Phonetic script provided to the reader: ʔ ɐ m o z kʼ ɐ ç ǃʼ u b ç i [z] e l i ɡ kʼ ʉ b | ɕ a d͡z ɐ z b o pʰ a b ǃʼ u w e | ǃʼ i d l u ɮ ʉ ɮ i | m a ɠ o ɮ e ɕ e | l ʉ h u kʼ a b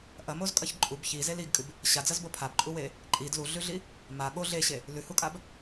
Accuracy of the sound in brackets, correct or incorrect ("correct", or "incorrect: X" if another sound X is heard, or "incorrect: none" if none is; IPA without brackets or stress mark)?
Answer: correct